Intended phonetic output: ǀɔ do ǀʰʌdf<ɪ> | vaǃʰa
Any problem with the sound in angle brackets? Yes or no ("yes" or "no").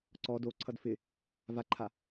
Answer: no